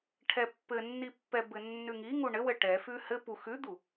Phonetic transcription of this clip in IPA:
ʈʰɛpːɘnːipːɛ bɘnːʉŋi ŋuɳɘwɘ ʈɛfʉ hɘ pu xʉd̪u

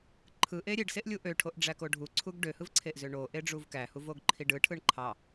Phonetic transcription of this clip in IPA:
ǃʰɯʔe ɾʲeɖseʔlʲu ʔøʈʰoʔɖ͡ʐæko ɖʱuǀʰuɡ ɖøhɯvǀʰeʔzø ɳoʔeɖ͡ʐuv kæhuvoɡǃʰi ɖɯʈʰɯɳ ǃʰɑ

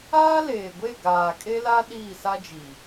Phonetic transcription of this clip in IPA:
aː˦leː˨ɡʷe˦˨ ɡaː˨kʼe˦la˦ ɗiː˦˨sa˦d͡ʒi˨

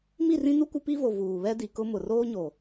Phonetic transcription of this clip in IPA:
mi˦˨rĩ˦nu˦ kʷɪ˦pi˦vo˨ vuː˨βɛ˦di˨kʊ˦ mʊ˨roː˦ɲo˨

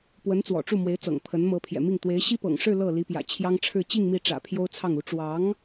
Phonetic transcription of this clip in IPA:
pwə˧˥nt͡swɔ̰˨˩ʈ͡ʂu˥˩mwe˧˥ɪ̯ t͡sɤ̰˨˩ŋpʰə˧˥nmɤ˧˥ pʰjɛ̰˨˩mi˥˩ŋ t̪we˧˥ɪ̯ ɕi˥ pɤ̰˨˩ŋ ʂɻ̩˥˧ lɤ˥˩li˧˥pjä̰˨˩ t͡ɕʰjɑ˥ŋʈ͡ʂʰɻ̩˥˧ t͡ɕi˥˧ŋ mi˥˩ ʈ͡ʂä̰˨˩ pʰjo˥ʊ̯t͡sʰɑ˥˩ŋu˧˥ ʈ͡ʂwɑ˧˥ŋ

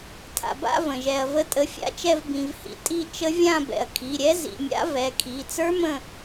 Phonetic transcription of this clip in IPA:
tʰa̰˩ba̰˦˨ və̃˩ʒɛ˩ɐ̯ və˨˦tʼə˩˧˩fʲa̰˦˨t͡ʃɛ˦˨v bĩ˩vhḭ˨˦ tʼi˦˨ t͡ʃə˦˥ vʲã˦˨bɛ̰˩ɐ̯ kʰi˩˧˩ɾʲɛ˦˥ zḭ˩˧˩mʲa̰˦˥ vɛ˩˧˩kʰi˩˧˩ t͡sə˞˦˥mə̃˦˨

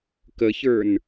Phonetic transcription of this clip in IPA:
kəçə˞n

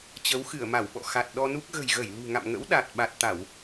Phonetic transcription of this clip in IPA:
t͡ɕə˨˦wxɨ˧˩ə̯ma˧˩wɓɔ̰˧˨ xa˨˩t̚ɗɔ˧nu˦˥k̚ ɣə̤˨˩jɣə˧˩j lṳ˨˩ŋa̰˧˨mŋə̰˧˥w ɗa˨˩t̚ ɓa˨˩t̚t̪a˧˩˨w

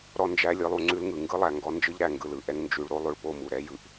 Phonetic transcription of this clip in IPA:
ɾɔ˧nd͡ʒæ˧ lʲɯ˧lˠu˧ŋ͡ǀʉ˦lŋɯ˨ ŋɡɯ˦lˠæ˨ŋɡɔ˧ nd͡ʒɯ˦ʎɾæ˨ ŋɡɯ˨lɯ˨ʔɛ˦ŋ nd͡ʒʉ˨ɭɾo˦ lˠo˧ɭpo˦˨mu˨ɾɛ˦ jɯ˨ʔ

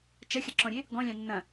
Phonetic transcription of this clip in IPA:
t͡ʃɐxʲɐǁɔ̃ɾʲe | ɡɔ̃lʲɑ̃ nːɐ̃

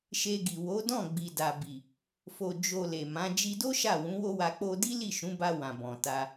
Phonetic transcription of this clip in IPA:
ʃe˧ɡi˨ wo˨˦dɔ̃˦˨ ɡ͡bi˨da˨bi˨ | fo˨d͡ʒo˨ le˨mã˨˦ d͡ʒi˧do˦ ʃa˦˨wũ˨˦wo˦wa˧ k͡po˧di˦ li˦˨ʃũ˨˦ba˧ wã˨bɔ̃˨ta˧

